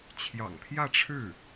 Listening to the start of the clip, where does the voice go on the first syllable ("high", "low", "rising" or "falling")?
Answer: low